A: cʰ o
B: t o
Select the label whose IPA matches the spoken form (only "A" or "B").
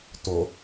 B